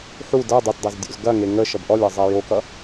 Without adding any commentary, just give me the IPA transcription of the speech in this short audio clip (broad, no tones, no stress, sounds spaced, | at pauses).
ħ u d ʌ dˤ ɛ t dˤ e z dʲ o̰ z ɡ ɐ ŋ e ŋ ə ʃ ʌ b ʔ ɔ lʲ ʌ zˤ ɛ j o k ʌ